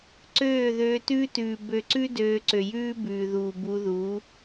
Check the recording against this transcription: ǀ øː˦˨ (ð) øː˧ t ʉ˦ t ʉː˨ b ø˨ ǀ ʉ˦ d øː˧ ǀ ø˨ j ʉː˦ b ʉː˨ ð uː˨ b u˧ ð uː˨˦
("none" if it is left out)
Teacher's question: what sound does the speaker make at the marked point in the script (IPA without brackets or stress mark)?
ð